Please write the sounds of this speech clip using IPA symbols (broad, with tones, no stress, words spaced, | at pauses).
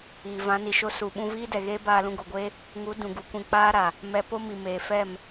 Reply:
iː˨vã˨˦ni˨ʃo˦ su˨ ɓũ˧viː˦dɛ˨ɣeː˦ baː˧lũ˧ɡo˨ɡʷeː˦ | ŋu˨˦ dũ˨ɡu˨ kʷĩ˧k͡paː˦ɾa˨ | mɛ˧po˦mi˨meː˨ fɛ˦˨m